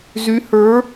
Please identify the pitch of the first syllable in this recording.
rising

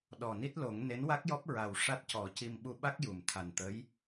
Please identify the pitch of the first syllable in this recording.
low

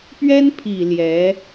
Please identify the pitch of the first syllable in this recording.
high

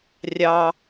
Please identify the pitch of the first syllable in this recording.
high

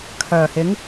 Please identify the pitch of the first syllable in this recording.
low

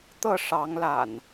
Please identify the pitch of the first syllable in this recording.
falling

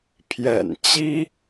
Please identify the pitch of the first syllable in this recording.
low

